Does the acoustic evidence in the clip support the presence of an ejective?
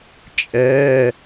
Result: yes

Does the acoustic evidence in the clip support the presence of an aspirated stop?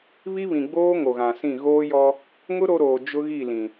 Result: no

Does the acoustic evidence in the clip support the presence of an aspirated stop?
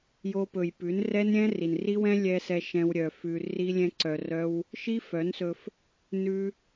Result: no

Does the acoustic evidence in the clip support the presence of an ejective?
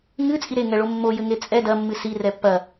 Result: yes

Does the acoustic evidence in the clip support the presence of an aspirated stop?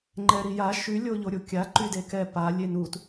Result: no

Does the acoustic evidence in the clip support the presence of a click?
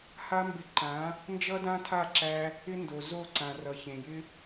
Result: yes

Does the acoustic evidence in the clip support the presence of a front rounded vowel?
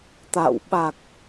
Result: no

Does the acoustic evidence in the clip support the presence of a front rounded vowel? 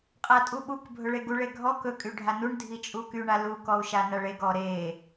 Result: yes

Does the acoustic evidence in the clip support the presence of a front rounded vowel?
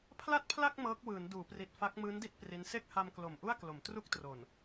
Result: no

